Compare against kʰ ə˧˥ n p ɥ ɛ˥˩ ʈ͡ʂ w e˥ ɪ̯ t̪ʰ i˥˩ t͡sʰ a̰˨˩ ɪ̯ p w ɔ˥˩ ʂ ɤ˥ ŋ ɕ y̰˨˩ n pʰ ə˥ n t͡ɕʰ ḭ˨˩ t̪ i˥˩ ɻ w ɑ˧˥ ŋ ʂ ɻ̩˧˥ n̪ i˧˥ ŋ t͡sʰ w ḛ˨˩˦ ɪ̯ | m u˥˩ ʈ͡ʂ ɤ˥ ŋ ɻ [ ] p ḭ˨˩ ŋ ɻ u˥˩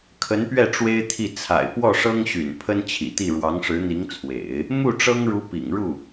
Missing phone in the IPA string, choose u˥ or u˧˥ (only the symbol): u˧˥